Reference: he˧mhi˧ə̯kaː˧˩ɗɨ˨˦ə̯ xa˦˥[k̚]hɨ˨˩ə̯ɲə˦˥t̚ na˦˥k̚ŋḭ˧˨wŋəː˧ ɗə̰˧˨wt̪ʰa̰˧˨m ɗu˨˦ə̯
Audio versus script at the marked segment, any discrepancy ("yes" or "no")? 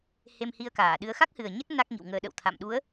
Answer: no